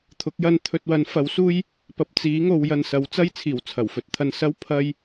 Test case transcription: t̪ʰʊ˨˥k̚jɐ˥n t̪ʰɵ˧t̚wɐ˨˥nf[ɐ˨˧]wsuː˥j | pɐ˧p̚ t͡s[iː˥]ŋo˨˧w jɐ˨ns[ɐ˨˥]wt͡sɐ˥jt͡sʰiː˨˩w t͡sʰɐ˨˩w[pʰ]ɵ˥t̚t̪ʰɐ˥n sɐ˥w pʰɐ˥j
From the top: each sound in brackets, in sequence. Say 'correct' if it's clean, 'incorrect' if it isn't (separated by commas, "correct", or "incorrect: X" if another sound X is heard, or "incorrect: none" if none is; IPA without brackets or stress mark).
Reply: incorrect: ɐ˨˥, incorrect: iː˨˥, correct, incorrect: f